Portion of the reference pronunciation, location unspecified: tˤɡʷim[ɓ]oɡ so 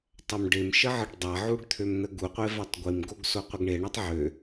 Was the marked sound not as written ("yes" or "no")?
yes